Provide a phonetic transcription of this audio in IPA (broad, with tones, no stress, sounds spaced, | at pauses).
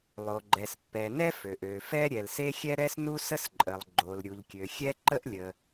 lˠ o˩ ɡ͡ǃ ɛ˩ s pː ɛ˩ n ɛ˥ f ø˩ ʔ ø˩ f ɛ˥ ɾʲ ɛ˩ l s e˥ xʲ ɛ˥ ɾ ɛ˥ s n u˥ s ə˥ s ǃʼ ə˩ lˠ ɡ͡ǃ o˩ l ɾʲ u˩ ʎ kʲ ø˩ xʲ ɛ˥ ǃ ə˥ ʔ lʲ ə˩